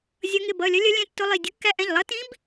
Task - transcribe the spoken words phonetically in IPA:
zʲ ʌ˧˥ ŋ ɪ˩˧˩ b ʌ˩˧˩ lʲ ʌ˧˥ lʲ ʌ˧˥ lʲ ɛ̃˧˥ tː ʊ˧˥ lˠ i˩˧˩ dʲ ʊ˧˥ kː æ˧˥ ʔ ɛ̃˩˧˩ ʎ lˠ ʌ˧˥ t ĩ˧˥ b

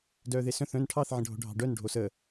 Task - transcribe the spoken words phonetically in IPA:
d œː ð e s œ̃ θ œ̃ n ʈʰ ɑ θ ʕ ə̃ ɖʱ o̤ ɖʱ ɑ̤ ɖ œ n ɖʱ o s ə

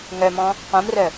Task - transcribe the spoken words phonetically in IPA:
ŋ œ m ɔ̃ | q õ m r œ

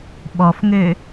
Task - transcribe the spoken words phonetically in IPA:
ɓ ɔ f ŋ ø

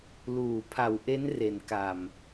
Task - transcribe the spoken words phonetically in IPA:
l uː˨˩ pʰ a˩˦ w ʔ e˦˥ n r e˨˩ n k a˨˩ m

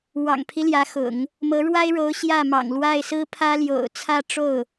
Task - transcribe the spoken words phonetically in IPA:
w ɑ̰˨˩ ŋ pʰ i˦ l j ä˧˥ x ʊ̰˨˩˦ ŋ | m ɤ˧˥ ɻ w a˥ ɪ̯ ɻ o˧˥ ʊ̯ ɕ j ä˥˩ m ɑ̰˨˩ ŋ l w a˥˩ ɪ̯ s ɹ̩˥ pʰ ä˥ l j o̰˨˩ ʊ̯ t͡sʰ ä˥˧ ʈ͡ʂ o˥˩ ʊ̯

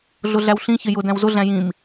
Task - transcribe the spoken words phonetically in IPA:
ɮ ʊ ɮ æ w ɬ ĩ ç ɪ j ʊ d æ̃ w z ʊ ɮ æ̃ j ĩ m

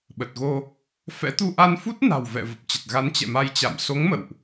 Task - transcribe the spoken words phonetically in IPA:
ɓ ə˨˩ t̚ ɣ o˧ | f ɛ̰˧˥ t̪ u˧ ʔ a˧ n f u˦˥ t̚ n a̤˨˩ w v ɛ̰˧˨ v ə˨˩ p̚ t͡ɕ ə˨˩ t̚ ɣ a˨˦ n t͡ɕ ɛ̰˧˨ m a˧ j t͡ɕ a̰˧˨ m s o˨˦ ŋ m ə̰˧˨ w ʔ

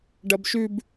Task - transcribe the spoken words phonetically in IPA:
ɖ ɐ b ʃ ʉ b

